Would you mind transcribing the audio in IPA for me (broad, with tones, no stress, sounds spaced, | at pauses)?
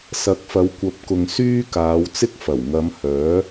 s ɐ˨˥ k̚ f ɐ˨˧ w kʷ ɐ˨˥ p̚ k ʊ˨ ŋ s yː˥ k aː˨˧ w t͡s ɪ˥ k̚ f ɐ˨˩ w ŋ ɐ˨˧ m h œː˨˥